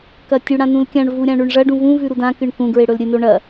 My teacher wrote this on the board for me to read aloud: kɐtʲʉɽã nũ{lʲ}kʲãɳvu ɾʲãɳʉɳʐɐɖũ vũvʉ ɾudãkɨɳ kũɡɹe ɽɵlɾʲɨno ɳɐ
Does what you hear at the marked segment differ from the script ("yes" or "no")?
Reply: yes